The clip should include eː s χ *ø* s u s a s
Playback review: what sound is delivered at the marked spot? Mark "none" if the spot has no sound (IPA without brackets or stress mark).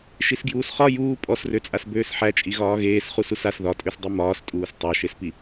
u